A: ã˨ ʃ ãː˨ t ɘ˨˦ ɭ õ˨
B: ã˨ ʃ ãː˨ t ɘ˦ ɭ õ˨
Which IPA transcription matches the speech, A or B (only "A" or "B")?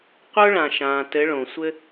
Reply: A